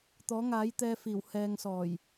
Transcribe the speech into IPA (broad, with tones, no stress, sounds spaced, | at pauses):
t̪ ɔː˨˥ ŋ aː˨˥ j t̪ ɛː˧ f iː˨˩ w h ɛː˨ ŋ s ɔː˨˩ j